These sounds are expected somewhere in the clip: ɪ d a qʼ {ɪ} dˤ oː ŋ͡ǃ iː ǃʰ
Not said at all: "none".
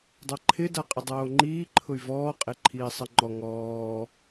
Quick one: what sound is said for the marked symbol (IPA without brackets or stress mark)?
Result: ɪ